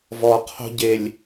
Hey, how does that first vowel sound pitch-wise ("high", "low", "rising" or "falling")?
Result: low